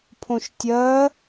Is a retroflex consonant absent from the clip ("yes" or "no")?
yes